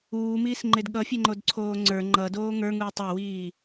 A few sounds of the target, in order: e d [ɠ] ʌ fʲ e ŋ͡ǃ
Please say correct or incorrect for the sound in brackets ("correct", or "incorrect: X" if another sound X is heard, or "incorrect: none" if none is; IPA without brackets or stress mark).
correct